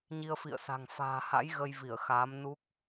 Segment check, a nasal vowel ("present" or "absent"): absent